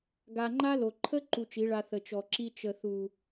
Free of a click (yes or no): no